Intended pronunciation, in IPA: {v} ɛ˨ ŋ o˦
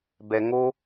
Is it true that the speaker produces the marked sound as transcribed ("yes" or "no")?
no